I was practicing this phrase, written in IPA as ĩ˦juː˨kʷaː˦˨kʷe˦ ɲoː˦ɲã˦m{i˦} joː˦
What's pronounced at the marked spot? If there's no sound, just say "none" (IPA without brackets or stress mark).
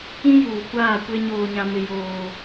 ɪ˦